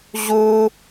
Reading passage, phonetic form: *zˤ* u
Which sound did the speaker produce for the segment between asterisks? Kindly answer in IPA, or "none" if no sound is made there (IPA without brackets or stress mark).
ʑ